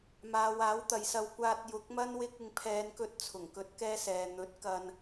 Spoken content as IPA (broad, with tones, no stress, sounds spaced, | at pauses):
m aː˨˧ w aː˨˥ w t̪ ɐ˨ j s ɐ˧ w kʷ aː˧ t̚ j ʊ˨˥ k̚ m ɐ˥ n w ɪ˥ k̚ ɪ˧ ŋ pʰ ɛː˨˧ n k ɵ˧ t̚ t͡sʰ ʊ˨˩ ŋ k ɵ˧ t̚ k ɛː˥ s ɛː˨ n̪ ɵ˨˥ t̚ k ɐ˧ n